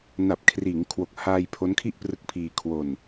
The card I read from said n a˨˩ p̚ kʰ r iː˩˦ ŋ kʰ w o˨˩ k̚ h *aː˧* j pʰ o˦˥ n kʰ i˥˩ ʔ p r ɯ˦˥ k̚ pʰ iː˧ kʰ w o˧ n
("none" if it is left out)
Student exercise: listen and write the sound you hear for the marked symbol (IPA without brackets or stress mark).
aː˧